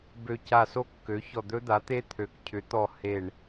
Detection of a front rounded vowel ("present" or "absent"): present